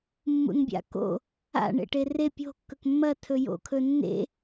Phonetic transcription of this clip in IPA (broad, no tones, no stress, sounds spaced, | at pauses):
mː ṵ n bʲ a̰ k o̰ | a̰ ɳ ḛ ʈ e r e pʲ o̤ kː ɵ k mː ɐ tʰ ɵ j o̰ kʰ ɵ nː ḛ